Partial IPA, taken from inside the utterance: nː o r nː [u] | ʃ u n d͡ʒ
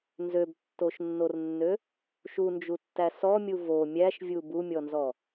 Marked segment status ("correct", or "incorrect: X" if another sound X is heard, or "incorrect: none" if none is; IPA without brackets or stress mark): incorrect: ø